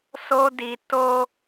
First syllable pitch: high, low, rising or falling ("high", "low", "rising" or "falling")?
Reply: high